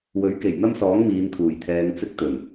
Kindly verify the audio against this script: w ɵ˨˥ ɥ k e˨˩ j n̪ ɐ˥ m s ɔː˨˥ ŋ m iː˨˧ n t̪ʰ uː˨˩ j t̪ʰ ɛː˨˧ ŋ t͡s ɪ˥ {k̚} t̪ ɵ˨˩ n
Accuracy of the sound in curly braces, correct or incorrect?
correct